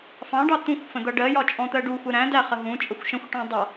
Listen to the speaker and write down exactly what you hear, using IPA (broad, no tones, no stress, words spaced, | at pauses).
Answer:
fɑ̃ɖɑ t̪ũxʷfə̃ d̪ʌɖɜjɒ t͡ʃʼɔ̃t̪ɜɖuxʷə ɾæ̃dæ χəɦũt͡ʃʼəxʷ ʃə̃xʷʈɑ̃ dˤʌ